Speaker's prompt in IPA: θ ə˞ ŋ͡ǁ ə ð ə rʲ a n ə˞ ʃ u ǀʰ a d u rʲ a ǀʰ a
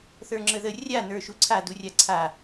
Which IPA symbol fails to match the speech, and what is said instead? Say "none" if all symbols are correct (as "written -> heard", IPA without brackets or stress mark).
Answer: none